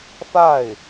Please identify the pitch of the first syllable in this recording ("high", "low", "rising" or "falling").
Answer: falling